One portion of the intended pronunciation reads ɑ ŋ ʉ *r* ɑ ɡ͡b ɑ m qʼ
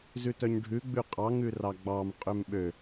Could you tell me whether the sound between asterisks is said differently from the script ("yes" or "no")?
no